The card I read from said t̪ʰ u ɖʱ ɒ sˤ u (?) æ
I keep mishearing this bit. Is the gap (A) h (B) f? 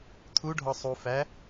B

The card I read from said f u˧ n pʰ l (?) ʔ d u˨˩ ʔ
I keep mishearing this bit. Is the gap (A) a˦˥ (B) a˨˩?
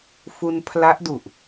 A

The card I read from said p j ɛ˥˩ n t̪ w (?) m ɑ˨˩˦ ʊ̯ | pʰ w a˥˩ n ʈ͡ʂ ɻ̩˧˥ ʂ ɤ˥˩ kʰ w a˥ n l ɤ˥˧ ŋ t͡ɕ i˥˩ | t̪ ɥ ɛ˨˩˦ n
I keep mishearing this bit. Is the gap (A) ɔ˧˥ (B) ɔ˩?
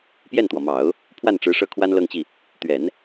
B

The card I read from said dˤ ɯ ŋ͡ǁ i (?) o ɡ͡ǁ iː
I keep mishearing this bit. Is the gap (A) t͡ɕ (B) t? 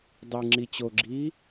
A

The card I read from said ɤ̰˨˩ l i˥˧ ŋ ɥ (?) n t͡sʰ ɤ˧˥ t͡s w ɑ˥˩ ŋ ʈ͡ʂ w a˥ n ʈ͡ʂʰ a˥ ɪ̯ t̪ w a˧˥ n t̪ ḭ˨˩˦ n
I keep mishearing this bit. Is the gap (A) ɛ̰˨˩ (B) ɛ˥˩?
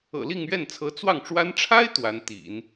B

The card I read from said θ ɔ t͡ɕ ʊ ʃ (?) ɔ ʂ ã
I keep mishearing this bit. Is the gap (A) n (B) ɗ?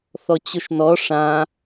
A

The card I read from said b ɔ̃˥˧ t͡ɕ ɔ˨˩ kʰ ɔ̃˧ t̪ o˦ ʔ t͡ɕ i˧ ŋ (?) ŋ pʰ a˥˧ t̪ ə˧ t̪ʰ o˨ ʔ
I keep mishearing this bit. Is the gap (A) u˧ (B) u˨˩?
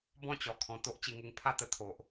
A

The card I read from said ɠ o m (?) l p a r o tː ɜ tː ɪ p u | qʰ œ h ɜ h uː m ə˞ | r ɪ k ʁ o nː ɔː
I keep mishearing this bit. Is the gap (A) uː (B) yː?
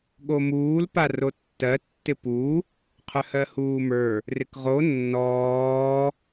A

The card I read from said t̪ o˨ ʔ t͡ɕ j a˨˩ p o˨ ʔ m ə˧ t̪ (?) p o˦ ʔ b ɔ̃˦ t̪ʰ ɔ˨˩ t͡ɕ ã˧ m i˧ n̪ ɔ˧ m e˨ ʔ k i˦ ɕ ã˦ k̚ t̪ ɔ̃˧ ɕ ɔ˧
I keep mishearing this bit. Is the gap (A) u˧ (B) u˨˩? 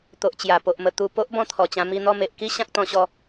B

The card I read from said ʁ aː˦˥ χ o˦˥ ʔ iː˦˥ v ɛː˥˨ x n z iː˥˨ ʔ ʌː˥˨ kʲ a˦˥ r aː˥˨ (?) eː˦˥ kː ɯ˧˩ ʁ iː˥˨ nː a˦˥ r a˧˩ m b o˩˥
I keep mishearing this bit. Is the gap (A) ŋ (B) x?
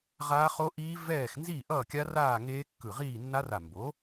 A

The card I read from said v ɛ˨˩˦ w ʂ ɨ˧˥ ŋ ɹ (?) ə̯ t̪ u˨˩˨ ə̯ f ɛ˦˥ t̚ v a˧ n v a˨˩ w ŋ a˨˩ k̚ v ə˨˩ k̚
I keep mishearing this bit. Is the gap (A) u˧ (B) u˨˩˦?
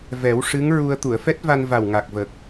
A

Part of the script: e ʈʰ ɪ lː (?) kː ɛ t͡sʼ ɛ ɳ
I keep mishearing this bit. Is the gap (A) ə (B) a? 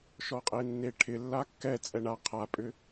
B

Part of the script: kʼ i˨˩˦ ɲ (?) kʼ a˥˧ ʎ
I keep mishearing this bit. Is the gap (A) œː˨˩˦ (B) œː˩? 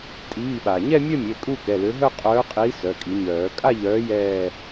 A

